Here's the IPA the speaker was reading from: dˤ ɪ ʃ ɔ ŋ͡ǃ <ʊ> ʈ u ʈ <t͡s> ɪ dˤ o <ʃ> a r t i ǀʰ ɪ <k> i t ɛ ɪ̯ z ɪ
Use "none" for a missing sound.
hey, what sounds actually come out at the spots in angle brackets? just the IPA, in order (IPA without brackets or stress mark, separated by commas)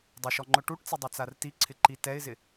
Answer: ʊ, t͡s, t͡s, ǃ